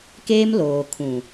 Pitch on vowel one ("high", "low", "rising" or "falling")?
high